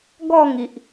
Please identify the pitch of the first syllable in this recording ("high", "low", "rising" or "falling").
falling